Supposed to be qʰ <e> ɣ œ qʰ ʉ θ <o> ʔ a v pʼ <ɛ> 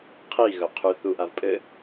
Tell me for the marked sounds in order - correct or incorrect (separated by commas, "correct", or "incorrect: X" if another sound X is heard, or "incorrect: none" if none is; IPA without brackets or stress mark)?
incorrect: i, incorrect: u, incorrect: ɘ